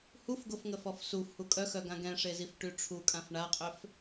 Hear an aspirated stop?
yes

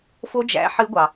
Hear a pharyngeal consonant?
yes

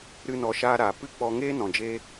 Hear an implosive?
no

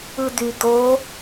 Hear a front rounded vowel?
yes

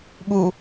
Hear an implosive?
yes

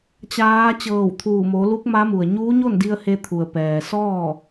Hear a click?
no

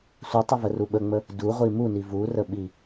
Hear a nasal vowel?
no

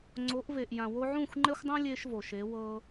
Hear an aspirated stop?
no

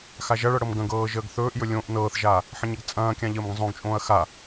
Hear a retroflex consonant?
yes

